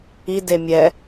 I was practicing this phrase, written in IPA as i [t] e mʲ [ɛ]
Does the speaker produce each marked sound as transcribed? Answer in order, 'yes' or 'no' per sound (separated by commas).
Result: no, yes